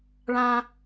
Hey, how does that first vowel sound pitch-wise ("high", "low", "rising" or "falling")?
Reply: high